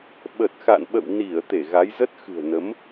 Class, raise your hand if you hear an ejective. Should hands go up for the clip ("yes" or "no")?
no